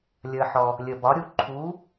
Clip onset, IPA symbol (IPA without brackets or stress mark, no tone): lʲ